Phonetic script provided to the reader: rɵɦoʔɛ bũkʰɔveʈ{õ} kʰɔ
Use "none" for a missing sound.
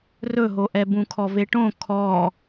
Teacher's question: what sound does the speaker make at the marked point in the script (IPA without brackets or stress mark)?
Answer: õ